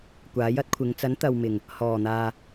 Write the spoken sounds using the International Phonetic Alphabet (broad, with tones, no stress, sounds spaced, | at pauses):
kʷ aː˨˥ j ɐ˥ t̚ kʷʰ ɪ˨˧ ŋ t͡s ɐ˨˥ n t̪ ɐ˨ w m ɪ˨˩ ŋ | h ɔː˨˩ n̪ aː˨